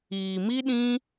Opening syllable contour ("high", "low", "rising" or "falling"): low